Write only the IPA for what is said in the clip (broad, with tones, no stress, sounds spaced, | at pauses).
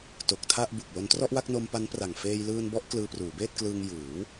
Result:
t o˨˩ k̚ tʰ a˥˩ ʔ b u˨˩ k̚ l o˧ n t r ɔ˥˩ ʔ w a˥˩ k̚ n o˧ m p a˦˥ n p r a˨˩ ŋ f eː˧ j l ɯː˧ n b ɔ˦˥ ʔ k l ɯː˧ p r uː˩˦ b eː˥˩ t̚ k l ɯː˧ ŋ j ɯː˩˦ w